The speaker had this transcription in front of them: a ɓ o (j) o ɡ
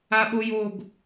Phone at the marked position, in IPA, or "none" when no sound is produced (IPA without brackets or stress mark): j